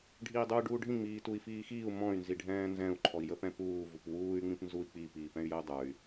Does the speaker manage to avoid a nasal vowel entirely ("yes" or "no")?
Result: no